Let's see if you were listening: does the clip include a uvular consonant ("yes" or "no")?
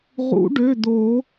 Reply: yes